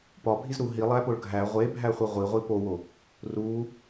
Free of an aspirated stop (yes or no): yes